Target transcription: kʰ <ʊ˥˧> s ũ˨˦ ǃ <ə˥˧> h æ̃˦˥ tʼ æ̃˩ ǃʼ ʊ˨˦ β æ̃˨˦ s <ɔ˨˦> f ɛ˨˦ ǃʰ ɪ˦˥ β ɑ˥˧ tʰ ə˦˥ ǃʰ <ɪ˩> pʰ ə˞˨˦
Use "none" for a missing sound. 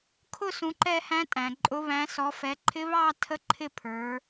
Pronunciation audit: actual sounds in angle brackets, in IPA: ʊ˥˧, ɛ˥˧, ɔ˨˦, ɪ˥˧

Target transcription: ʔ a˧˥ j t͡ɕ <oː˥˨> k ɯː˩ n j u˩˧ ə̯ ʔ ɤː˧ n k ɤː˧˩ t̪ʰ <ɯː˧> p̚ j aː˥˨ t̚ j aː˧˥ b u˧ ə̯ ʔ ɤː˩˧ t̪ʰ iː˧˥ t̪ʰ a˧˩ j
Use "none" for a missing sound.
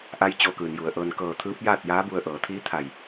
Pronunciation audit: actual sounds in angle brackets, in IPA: oː˧, ɯː˧˥

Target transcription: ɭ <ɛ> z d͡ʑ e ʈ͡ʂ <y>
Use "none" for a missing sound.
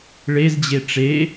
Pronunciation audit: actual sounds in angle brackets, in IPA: e, e

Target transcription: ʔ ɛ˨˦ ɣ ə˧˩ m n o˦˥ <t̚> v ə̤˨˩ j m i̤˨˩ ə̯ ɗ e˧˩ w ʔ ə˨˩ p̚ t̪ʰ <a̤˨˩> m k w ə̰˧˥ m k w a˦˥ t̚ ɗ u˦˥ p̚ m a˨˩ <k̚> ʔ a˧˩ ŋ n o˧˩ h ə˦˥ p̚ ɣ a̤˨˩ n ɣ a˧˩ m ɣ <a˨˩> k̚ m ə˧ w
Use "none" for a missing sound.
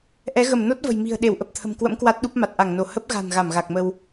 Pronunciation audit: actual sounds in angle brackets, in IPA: t̚, ə̤˨˩, t̚, a˨˩

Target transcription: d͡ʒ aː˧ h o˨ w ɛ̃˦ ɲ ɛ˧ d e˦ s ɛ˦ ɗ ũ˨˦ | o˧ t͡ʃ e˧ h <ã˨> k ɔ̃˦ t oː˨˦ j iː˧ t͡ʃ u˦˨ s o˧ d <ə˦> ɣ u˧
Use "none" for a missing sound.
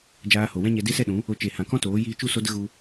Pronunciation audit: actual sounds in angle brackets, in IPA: ã˧, ə˦

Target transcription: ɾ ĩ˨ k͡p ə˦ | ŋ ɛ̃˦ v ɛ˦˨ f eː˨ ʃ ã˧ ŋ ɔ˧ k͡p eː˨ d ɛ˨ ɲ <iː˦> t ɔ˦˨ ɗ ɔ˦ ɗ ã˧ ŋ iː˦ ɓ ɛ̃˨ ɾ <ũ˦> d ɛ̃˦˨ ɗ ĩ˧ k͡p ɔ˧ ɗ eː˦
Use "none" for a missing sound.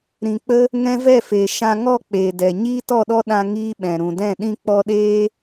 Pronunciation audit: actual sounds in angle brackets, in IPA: iː˦, ũ˨

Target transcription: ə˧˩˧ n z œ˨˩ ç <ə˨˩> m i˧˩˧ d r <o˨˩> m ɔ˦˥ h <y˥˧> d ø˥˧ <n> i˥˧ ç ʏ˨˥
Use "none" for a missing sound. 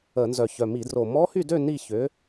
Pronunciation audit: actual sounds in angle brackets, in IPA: œ˨˩, o˨˩, y˥˧, n

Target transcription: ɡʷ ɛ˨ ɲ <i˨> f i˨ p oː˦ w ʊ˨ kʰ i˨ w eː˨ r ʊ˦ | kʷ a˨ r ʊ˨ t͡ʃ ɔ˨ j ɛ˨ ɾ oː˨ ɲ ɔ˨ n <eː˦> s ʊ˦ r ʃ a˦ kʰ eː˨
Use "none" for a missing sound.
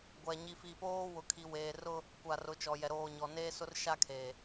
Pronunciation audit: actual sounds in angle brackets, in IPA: i˨, eː˦

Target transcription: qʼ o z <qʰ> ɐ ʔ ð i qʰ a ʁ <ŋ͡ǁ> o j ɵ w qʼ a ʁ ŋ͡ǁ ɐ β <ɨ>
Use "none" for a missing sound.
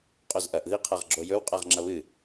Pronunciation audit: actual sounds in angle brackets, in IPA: ʔ, ɡ͡ǁ, ɨ

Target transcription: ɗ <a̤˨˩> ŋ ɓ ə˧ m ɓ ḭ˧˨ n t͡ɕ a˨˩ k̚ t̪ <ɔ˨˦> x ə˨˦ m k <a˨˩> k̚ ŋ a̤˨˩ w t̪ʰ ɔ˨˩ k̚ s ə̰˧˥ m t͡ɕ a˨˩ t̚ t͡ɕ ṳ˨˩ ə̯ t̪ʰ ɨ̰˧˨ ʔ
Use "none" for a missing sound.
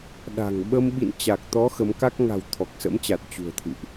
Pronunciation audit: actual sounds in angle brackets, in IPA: a̤˨˩, ɔ˨˦, a˦˥

